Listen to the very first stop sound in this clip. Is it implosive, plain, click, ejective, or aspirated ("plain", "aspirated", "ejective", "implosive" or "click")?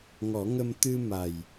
plain